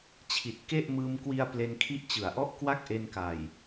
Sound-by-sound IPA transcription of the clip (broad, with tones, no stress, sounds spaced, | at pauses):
t͡ɕʰ i˨˩ t̚ k e˥˩ ʔ m ɯː˧ m k w i˧ a̯ p l e˧ n kʰ i˦˥ ʔ t͡ɕ ɯ˩˦ a̯ ʔ ɔ˥˩ ʔ k w a˥˩ k̚ ʔ e˧ n k a˨˩ j